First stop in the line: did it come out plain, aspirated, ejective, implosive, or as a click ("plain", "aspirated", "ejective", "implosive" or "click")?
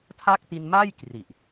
aspirated